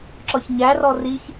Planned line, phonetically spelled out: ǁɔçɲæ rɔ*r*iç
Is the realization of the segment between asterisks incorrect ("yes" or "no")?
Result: no